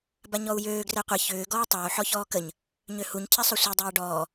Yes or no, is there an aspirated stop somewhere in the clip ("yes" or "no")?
yes